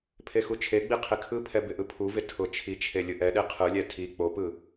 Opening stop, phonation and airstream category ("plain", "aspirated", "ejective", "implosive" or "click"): aspirated